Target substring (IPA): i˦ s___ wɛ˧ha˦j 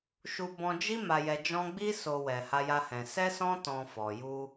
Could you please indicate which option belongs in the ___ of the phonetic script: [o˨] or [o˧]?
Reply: o˧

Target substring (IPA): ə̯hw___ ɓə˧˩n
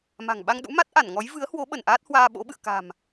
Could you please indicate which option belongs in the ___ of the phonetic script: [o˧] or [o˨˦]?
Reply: o˨˦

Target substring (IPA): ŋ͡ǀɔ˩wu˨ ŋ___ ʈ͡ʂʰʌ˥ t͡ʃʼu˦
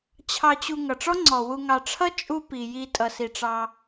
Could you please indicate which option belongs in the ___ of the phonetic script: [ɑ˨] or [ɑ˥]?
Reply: ɑ˨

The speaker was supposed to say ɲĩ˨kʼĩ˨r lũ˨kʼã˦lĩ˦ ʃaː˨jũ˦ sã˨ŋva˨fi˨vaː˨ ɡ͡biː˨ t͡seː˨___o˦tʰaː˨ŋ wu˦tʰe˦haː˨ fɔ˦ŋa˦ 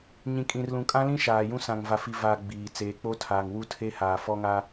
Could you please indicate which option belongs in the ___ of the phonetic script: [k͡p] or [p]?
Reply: k͡p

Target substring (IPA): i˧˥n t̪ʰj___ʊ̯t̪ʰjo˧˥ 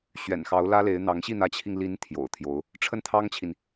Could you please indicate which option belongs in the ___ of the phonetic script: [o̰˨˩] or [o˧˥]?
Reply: o̰˨˩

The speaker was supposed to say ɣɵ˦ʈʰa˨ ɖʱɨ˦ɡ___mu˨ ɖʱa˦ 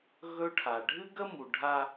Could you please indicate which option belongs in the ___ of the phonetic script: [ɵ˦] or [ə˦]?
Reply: ə˦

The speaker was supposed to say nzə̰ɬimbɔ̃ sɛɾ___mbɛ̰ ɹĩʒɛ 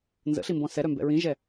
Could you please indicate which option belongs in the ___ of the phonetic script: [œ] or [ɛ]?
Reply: œ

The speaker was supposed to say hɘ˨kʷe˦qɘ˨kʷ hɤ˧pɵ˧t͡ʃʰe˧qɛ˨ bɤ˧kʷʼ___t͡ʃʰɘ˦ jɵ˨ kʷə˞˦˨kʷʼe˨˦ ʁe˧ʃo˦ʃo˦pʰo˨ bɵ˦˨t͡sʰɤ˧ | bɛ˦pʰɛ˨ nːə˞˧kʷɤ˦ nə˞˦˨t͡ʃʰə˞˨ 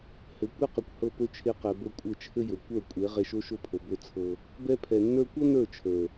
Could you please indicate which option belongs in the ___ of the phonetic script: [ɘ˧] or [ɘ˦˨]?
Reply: ɘ˦˨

